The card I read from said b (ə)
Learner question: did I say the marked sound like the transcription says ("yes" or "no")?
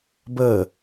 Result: yes